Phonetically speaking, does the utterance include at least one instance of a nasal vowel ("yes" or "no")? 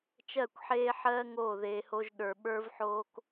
no